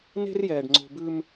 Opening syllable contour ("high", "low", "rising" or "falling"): high